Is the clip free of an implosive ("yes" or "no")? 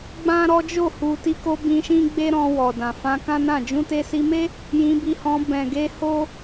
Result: yes